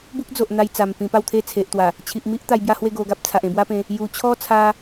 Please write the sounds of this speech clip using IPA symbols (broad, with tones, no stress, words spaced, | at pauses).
bu˦k̚d͡zo˨ʔ n̪a˧jt͡sa˨˩m pĩ˧pa˥˧wt̪ʰe˥˧ t͡sʰe˨ʔt̪wa˨˩ | t͡ɕʰi˨ʔmi˦ʔ t̪a˧jbja˦hwe˥˧ ɡo˧ɡa˦p̚t͡sʰa˨ʔ ẽ˧bwa˦pẽ˧ | ju˨˩t͡ɕʰɔ˦ t͡sʰa˦